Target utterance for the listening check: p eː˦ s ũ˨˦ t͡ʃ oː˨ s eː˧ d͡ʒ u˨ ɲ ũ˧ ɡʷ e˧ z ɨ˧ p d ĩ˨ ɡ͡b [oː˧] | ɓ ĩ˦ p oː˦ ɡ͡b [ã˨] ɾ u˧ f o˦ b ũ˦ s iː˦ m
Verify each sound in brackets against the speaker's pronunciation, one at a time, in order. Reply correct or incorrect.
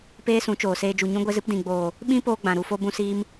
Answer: incorrect: oː˨, correct

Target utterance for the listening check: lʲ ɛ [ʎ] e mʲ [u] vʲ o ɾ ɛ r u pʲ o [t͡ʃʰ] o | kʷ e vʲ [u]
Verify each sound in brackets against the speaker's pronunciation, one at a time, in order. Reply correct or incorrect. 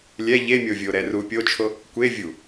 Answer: correct, incorrect: o, correct, correct

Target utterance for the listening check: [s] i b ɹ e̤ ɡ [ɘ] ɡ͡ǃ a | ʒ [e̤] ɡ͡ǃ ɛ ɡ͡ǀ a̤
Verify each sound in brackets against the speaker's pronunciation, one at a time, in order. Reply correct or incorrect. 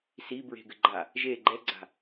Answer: correct, correct, incorrect: e

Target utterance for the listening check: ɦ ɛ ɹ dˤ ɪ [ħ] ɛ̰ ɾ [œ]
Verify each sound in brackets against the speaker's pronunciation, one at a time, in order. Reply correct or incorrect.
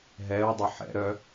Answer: correct, correct

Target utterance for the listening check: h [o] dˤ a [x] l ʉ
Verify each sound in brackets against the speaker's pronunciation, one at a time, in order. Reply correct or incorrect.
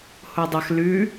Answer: correct, correct

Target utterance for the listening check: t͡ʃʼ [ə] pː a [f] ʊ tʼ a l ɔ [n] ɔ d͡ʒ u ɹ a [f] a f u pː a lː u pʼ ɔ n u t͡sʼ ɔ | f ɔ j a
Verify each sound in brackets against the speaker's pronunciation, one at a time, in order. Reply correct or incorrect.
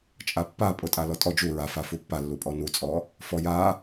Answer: incorrect: a, incorrect: pʼ, incorrect: tʼ, correct

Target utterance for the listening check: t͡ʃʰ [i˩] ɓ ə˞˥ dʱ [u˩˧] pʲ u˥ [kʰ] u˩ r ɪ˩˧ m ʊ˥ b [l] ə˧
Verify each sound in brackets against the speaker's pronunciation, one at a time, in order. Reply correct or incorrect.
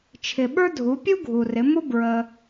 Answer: incorrect: ɪ˩, correct, incorrect: ɡʱ, incorrect: ɹ

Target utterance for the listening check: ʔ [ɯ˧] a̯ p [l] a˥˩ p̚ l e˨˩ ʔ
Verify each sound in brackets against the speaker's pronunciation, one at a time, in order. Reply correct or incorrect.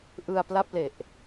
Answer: correct, correct

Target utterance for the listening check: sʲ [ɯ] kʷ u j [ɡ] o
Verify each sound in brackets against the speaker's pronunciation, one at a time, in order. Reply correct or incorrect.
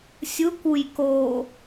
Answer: correct, incorrect: k

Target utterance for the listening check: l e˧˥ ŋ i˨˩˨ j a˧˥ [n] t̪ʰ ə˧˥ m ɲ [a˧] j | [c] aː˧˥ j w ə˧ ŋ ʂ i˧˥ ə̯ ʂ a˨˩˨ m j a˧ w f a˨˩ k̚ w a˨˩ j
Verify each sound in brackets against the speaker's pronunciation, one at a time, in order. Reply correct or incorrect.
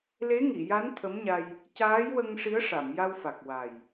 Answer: correct, correct, correct

